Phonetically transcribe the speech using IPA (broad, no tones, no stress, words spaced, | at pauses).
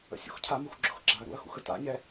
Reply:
ə̰sʲṵxcʰamux ɡ͡ǁʊxɡ͡ǁaɐ̯ɾṵɐ̯xṵx əta̰ɲɛ